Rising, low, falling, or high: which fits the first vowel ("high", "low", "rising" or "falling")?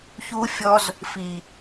high